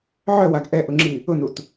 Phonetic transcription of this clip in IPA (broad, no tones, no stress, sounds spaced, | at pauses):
ʕ œ w a ɡ ʔ ɛ ʔ ʊ ŋ͡ǁ i | ʊ n u t